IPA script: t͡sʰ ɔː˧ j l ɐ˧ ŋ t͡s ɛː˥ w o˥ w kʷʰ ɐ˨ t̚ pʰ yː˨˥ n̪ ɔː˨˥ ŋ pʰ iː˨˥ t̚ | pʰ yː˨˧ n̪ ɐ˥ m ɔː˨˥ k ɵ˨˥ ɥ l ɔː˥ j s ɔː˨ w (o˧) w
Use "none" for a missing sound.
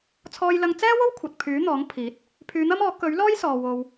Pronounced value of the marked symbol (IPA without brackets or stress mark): o˧